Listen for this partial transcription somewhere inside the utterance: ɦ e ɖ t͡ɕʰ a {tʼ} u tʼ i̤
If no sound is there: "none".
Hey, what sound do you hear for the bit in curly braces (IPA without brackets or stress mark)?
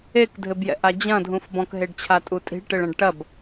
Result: tʼ